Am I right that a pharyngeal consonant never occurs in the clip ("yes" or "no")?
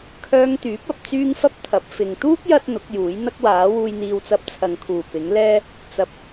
yes